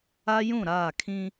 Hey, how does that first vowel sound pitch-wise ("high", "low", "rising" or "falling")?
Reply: high